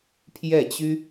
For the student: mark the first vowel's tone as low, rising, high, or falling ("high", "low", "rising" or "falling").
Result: falling